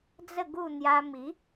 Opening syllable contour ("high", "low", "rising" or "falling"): falling